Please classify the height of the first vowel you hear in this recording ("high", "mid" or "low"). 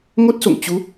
mid